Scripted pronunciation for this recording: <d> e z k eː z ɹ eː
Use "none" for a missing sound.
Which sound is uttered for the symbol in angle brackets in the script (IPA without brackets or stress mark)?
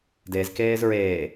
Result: d